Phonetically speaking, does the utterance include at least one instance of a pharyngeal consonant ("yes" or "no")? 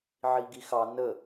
yes